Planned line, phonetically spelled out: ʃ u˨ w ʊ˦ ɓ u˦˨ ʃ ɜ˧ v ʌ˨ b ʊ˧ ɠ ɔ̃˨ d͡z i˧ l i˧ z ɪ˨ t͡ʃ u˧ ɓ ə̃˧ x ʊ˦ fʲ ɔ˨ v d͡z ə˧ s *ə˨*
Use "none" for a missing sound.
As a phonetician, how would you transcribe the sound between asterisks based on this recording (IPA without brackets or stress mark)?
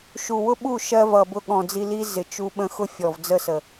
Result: ə˨